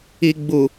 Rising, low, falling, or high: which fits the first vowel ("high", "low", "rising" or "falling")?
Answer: low